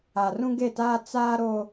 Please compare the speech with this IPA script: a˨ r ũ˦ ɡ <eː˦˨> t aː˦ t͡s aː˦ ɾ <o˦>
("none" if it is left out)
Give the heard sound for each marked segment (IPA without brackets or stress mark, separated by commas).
e˦˨, o˦